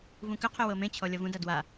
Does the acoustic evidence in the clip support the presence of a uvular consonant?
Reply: yes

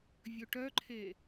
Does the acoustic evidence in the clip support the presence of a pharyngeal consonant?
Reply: no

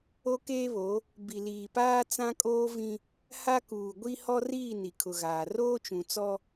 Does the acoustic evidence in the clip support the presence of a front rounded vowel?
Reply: no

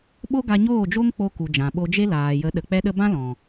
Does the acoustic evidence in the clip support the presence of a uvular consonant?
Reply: no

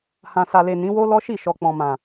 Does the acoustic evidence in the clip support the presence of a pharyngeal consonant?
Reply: no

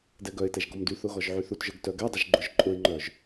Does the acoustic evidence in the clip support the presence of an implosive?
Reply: no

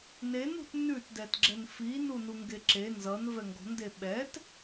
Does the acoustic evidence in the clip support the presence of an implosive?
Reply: yes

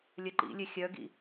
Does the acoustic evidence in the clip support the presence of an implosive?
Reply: no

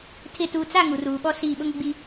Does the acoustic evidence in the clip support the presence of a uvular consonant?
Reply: no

